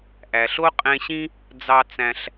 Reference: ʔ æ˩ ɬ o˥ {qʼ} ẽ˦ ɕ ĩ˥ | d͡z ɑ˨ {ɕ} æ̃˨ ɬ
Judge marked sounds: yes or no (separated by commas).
yes, no